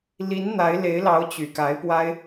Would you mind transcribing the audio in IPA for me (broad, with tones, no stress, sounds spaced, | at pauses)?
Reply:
l i˧˥ n n̪ a˧˥ ɪ̯ l e˧˥ ɪ̯ l ɑ˧˥ ʊ̯ t͡ɕ y˨˩ k a˧˥ ɪ̯ p w a˥ ɪ̯